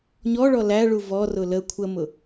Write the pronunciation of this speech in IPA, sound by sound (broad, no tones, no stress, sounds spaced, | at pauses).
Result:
ɲ ɔ ɭ ɔ l æ ɭ u v ɔ r ʊ l ə kʷʰ ə m ʊ